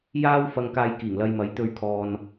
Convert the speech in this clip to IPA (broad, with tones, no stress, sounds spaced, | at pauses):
j aː˥ w f ɐ˧ ŋ k aː˧ j k iː˨˩ ŋ l ɐ˧ j m ɐ˨˥ j t̪ ɵ˨˧ ɥ kʰ ɔː˨ n